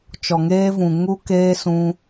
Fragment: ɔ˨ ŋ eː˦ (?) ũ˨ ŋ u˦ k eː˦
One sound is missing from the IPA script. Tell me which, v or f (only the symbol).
v